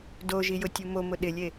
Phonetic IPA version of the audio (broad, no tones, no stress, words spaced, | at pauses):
doʒijʊtʲu momʊ ɗɪlʲe